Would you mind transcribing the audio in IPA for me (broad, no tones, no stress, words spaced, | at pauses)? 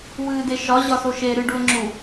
wɨːdeʃɒ ʑɒsoʃe ɾɨɖuə̯ŋ͡ǁu